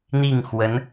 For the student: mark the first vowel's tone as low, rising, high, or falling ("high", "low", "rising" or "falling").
falling